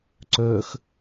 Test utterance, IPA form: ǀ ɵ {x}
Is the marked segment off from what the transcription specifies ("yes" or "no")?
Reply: no